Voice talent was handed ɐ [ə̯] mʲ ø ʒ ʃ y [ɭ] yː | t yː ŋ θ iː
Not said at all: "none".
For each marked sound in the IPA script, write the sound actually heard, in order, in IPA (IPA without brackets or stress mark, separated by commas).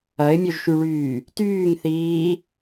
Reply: ɪ̯, ɭ